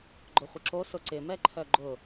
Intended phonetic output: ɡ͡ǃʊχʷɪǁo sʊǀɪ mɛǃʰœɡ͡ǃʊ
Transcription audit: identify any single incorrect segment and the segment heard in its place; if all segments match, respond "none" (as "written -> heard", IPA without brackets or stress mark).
none